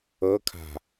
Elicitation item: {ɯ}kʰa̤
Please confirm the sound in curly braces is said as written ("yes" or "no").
no